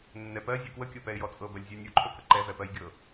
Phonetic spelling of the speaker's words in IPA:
nːɛpɜ zʲɛkwəkʲɤ pɛɪ̯jɔt͡sʼɤbɜlʲ zʲɜnʲuǃʰɵkə ǃɛvɛpɜjɡʲɤ

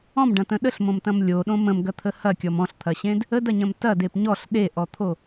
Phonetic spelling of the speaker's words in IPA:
ɔ̃mɖɐ̃tə̃ ɗəɬmõmtɐ̃m lʲoɗõ mə̃mɡɐt̪ʰə hɐkʲɔm ɔ̃ɬt̪ʰɐɕẽd | ədɐɲɐ̃m tɐdep ɲɔɬ ɗeʔɔt̪ʰo

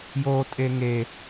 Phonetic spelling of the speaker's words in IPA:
jotʼe ŋe

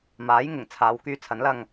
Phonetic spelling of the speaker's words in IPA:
maː˨˥jŋɪ˨˩ŋ t͡sʰaː˨˧wkyː˧t͡sʰɐ˨˥nlɐ˧ŋ

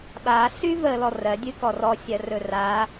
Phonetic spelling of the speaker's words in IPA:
ɓa ɬyvə lɔrɜ dʲɨkɔrɔ sʲɜrɵra

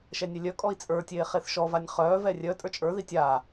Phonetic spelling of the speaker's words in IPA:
ʃɛnʲɛlʲœkʼɔi̯ t͡sʼə˞tʲeː χeθʃɔvanʲ χœːvɛ rʲœ tʼə˞t͡ʃʼə˞ði tʲa

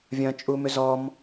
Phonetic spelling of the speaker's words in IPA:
vʲɐ̃t͡ʃʼumʏ zɔm

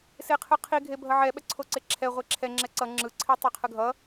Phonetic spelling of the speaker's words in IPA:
seqʰɯqʰi ɡʱebʱʌʕɛ ɓɛǀʰoǀeǁʰɛ ʁʷeǁʰɛ ŋ͡ǁɛǀʌ ŋ͡ǁɯ ǀʰitˤɛqʰɯɡʱʌ

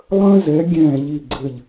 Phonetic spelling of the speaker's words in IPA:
lˠə̃ː˥zɛ˩˥ ɡʲɛ̃ː˥˩ʎi˥˩ɡ͡ǀɘ˥˩ʎ

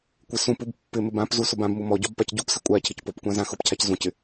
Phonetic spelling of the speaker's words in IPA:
kʷɪsũpub pːɪ mɪbãpzu sʊbãbmu mɔɟɔb pacɟupsɪ kʷʼa cʰɪcpopkʷã zãxʊpcʰac zũcɪ

